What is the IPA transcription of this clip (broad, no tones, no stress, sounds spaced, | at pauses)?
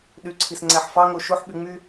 ɗ y ǀʰ i s ŋ͡ǀ æ ħ f ɑ ŋ o ʃ o ħ ɓ y ŋ͡m y